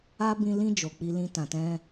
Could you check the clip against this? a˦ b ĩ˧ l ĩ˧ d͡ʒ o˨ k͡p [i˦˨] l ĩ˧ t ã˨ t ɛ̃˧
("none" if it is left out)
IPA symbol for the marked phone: i˧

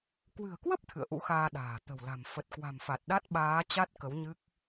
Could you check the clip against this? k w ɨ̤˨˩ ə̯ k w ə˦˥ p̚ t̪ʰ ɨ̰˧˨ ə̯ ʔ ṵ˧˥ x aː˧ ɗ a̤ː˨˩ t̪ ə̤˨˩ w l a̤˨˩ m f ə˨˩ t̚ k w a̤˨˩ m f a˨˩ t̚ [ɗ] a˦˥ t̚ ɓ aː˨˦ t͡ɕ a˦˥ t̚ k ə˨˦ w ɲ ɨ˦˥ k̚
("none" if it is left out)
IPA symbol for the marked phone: ɗ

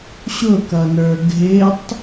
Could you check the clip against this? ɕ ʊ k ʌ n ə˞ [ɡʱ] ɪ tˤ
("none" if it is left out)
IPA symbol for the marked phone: ɡʱ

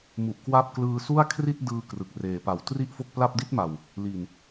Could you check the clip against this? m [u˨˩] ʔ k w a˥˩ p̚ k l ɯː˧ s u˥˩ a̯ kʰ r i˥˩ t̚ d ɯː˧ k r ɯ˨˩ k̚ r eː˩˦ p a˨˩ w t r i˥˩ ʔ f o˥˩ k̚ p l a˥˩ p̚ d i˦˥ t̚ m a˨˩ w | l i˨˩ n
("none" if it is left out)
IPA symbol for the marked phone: u˨˩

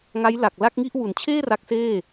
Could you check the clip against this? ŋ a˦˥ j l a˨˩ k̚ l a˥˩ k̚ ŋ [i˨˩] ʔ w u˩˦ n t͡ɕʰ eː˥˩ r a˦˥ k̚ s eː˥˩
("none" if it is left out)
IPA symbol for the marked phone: i˥˩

